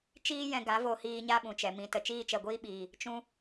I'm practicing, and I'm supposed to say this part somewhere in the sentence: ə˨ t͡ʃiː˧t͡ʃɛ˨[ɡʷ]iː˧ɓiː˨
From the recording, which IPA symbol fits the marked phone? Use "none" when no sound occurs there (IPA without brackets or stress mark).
ɡʷ